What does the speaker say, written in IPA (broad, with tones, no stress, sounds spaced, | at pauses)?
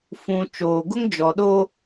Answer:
f ũ˨ t͡ʃ oː˨ ɡ ʊ˦ ŋ d͡ʒ ɔ˨ ɗ o˦